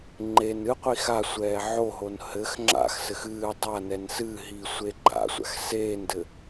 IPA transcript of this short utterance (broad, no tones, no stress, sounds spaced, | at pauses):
ŋ͡ǃ e n ɨ qʷ i x a sʷ ɛː ʕ o ɦ o n h ɘ x ŋ͡ǁ a̰ x s ɘ x ɨː dˤ a n ɛ n s ɨ ɦ i sʷ e ɡ͡ǃ a̰ sʷ a̰ x s eː n d ɘ